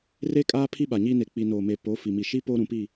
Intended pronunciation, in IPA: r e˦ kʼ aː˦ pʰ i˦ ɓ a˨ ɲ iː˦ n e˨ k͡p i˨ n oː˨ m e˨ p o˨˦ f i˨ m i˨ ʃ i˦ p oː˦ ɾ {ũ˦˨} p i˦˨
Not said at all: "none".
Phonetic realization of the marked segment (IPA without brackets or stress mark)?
ũ˨